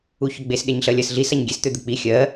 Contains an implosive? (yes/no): yes